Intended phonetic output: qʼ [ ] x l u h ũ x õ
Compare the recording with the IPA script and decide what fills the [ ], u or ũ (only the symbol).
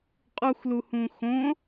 u